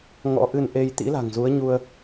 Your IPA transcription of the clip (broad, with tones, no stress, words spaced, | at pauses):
ŋɔ̰˧˥ʔɨ˧nʔe˧j t̪ḭ˧˥la̤˨˩ŋzu˨˦ə̯ɲu˧ə̯